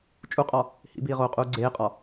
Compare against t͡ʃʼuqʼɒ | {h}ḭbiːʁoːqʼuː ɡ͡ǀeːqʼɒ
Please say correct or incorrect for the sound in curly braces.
correct